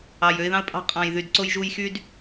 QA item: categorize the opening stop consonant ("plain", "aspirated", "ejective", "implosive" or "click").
ejective